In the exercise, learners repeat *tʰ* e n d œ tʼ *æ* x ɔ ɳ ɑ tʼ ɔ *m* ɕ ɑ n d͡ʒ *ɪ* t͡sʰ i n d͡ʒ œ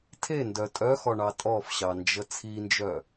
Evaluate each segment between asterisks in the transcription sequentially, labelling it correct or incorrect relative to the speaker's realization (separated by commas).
correct, incorrect, incorrect, incorrect